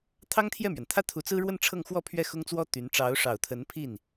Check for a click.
absent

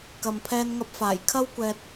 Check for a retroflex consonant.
absent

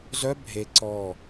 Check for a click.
present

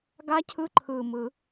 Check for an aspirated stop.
present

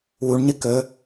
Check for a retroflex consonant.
present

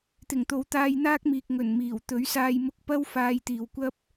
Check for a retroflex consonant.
absent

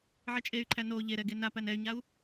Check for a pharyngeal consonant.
present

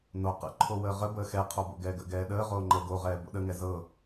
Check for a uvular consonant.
present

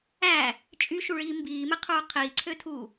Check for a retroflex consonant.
present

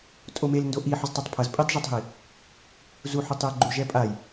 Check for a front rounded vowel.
absent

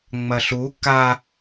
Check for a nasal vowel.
absent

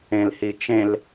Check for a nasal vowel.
present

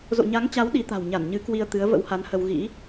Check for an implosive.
present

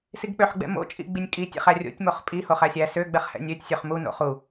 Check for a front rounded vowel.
present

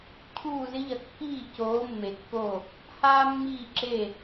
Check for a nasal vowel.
absent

